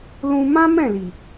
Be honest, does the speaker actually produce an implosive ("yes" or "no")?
no